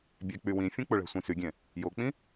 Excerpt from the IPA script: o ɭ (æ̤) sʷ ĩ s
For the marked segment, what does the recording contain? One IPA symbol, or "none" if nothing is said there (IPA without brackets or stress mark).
æ̤